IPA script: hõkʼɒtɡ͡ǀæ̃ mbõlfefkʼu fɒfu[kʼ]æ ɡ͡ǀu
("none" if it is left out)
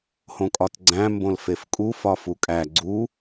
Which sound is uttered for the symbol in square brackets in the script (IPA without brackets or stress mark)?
kʼ